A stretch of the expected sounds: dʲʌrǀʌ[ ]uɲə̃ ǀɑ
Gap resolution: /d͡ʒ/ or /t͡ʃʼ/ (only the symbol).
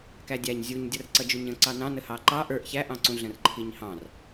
d͡ʒ